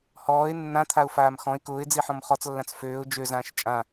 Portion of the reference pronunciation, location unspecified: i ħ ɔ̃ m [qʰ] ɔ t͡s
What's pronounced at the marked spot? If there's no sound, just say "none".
χ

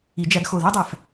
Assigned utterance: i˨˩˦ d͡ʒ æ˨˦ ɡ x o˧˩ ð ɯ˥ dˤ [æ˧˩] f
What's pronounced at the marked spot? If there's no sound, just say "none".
æ˧˩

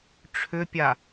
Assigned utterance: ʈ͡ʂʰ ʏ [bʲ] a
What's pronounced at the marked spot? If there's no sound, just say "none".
pʲ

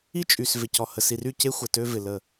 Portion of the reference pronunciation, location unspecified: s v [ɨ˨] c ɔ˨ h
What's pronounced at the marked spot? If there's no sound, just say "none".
ɪ˨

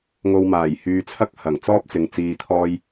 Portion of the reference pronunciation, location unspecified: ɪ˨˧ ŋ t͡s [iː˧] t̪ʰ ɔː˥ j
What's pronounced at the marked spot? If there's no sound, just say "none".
iː˧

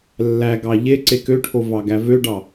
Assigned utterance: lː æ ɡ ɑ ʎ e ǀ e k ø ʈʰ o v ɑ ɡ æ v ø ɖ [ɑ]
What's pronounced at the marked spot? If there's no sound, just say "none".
ɑ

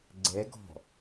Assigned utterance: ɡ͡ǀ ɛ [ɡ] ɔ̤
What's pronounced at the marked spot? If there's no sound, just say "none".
ɡ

